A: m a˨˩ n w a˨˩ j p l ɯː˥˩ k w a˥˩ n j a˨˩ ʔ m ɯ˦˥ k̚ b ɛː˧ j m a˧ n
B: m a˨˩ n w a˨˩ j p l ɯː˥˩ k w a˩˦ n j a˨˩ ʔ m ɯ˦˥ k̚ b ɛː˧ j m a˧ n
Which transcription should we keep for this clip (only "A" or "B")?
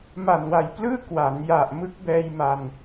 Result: B